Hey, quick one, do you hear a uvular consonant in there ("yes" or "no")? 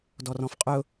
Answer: yes